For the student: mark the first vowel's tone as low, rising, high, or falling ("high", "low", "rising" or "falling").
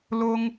high